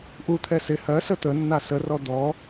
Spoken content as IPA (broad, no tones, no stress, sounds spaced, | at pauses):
ʔ u t̪ʰ ɛ s ɪ h ɜ s ə t̪ ə nː a s ə r ɔ d̪ ɔ